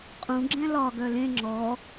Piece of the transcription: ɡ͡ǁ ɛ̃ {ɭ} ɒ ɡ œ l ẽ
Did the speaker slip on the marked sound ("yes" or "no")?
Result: yes